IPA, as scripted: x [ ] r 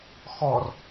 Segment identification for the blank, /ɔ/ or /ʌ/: ɔ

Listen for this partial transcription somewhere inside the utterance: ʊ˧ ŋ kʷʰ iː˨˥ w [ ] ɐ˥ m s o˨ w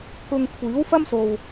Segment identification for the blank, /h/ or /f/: f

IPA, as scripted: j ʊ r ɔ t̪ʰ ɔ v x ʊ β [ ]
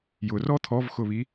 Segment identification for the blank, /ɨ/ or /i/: i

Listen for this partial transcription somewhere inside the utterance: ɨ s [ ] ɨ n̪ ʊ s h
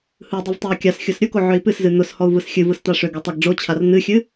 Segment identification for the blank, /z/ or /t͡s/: z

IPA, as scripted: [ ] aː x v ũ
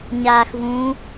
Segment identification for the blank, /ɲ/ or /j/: ɲ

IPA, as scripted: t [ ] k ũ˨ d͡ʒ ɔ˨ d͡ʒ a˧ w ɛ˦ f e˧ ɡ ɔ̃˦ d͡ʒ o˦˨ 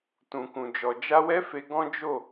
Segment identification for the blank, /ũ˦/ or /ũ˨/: ũ˨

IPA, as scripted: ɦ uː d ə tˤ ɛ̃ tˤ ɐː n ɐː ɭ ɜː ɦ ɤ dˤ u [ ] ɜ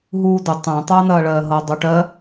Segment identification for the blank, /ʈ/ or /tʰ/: ʈ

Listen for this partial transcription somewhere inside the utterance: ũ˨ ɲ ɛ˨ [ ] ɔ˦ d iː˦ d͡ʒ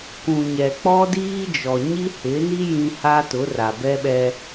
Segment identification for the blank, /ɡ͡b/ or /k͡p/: k͡p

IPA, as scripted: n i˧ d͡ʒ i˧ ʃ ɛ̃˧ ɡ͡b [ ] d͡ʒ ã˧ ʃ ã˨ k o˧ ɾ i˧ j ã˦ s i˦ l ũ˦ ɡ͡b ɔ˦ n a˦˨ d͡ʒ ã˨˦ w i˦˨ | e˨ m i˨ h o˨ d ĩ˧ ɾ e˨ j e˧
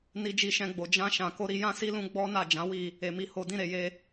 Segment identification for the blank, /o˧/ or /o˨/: o˨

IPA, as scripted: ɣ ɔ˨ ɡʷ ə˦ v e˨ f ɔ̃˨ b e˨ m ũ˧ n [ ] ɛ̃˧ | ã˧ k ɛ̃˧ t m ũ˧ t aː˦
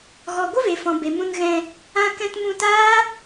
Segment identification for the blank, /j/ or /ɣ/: ɣ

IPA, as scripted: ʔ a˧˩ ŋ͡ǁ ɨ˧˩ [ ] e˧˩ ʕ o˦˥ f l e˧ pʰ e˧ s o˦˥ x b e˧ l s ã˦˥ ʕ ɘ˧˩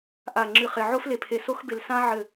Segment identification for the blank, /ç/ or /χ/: χ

